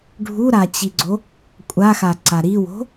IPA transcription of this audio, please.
ɖʱ u ɾ a t͡ɕ i ɡ͡ǀ o | kʷʼ a x a ǀ a ɾ i w o̤

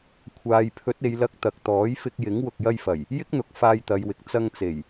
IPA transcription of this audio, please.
kʷʰ aː˨ j pʰ ɵ˨˥ t̚ e˨˧ j l ɐ˧ k̚ t̪ ɐ˨ k̚ t̪ ɔː˨˥ j f ɪ˧ k̚ j ɪ˨˥ ŋ w ʊ˨ k̚ j ɐ˧ j f ɐ˨˩ j | j ɪ˥ k̚ n̪ ʊ˨ k̚ f aː˧ j t̪ ɐ˨˧ j w ɪ˨ k̚ t͡s ɐ˧ ŋ t͡s e˨˩ j

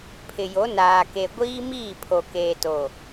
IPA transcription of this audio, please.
pʰ ɪ˨ j o˨˦ n aː˨ k e˨ ɡʷ iː˦ m iː˦˨ pʰ o˨ k eː˨ t o˨

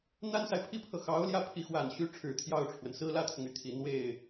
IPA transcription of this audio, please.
n̪ a˥ n s a˨ ɪ̯ pʰ i˥ pʰ ɤ˨ x ɑ˧˥ ʊ̯ l j ä˥˩ pʰ i˧˥ x w a˨˩ n ɕ y˧˥ ʈ͡ʂʰ ɻ̩˨˩ t̪ʰ j ɑ˥˩ ʊ̯ ʈ͡ʂʰ w ə˩ n s ɹ̩˥ l ä˥ t̪ʰ ʊ˨ ŋ y˥˩ t̪ʰ i˨˩ n̪ w e˥˩ ɪ̯

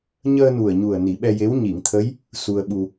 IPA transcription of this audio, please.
ɲ əː˧ n u˨˩ ə̯ ɲ u˨˩ ə̯ n i˨˩˦ ɓ ɛ˧ j e˧˥ w ɲ i˨˩˨ ŋ t̪ʰ ə˧˥ j | s u˧ ə̯ ɓ u˧

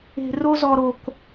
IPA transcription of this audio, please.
e̤˦ r o˥ z ɔ˦ ɾ o˦ k

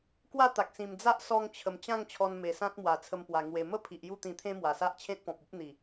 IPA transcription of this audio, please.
k w a˥˧ t̪ a˨ k̚ s ĩ˨˩ m d͡z a˦ ʔ s ɔ˧ ŋ t͡ɕʰ ə˨˩ m t͡ɕ ã˥˧ ŋ t͡ɕʰ ɔ˧ n m e˨˩ s ã˦ t̚ m w a˨˩ t͡sʰ ə˧ m p w a˨˩ ŋ w e˨˩ m ə˥˧ pʰ i˨ ʔ j u˥˧ t̪ ĩ˧ t̪ʰ ẽ˦ m w a˨˩ s a˦ ʔ t͡ɕʰ ẽ˦ t̚ p ɔ̃˨ p̚ u˦ p̚ n̪ i˨˩

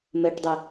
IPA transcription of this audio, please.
m ɜ ʈ dˤ ɛ

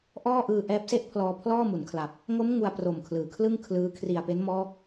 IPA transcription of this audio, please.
ʔ ɔː˥˩ ʔ ɯː˧ ʔ ɛː˦˥ p̚ s e˥˩ ʔ pʰ l ɔː˧ pʰ l ɔː˥˩ m u˩˦ n kʰ l a˨˩ p̚ | ŋ o˦˥ m ŋ u˧ a̯ p r o˨˩ m kʰ l ɯː˩˦ kʰ l ɯ˥˩ ŋ kʰ l ɯː˦˥ kʰ r i˨˩ a̯ p e˦˥ n m ɔː˦˥ k̚

